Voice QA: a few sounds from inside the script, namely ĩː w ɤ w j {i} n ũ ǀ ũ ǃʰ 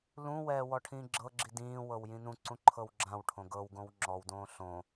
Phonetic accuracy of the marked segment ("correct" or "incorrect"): incorrect